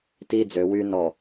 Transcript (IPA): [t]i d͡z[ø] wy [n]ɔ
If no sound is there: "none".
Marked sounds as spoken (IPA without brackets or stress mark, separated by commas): t, ø, n